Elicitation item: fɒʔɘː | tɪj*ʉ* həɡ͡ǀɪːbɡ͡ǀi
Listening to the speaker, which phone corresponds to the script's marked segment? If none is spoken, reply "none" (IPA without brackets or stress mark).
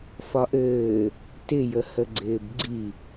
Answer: ə